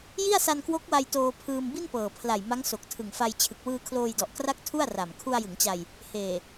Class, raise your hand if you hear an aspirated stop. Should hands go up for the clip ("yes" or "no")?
yes